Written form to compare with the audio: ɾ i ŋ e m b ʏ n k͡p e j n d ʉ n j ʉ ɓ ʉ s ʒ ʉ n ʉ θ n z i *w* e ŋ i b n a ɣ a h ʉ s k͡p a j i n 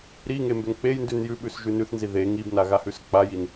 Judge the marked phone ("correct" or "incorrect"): incorrect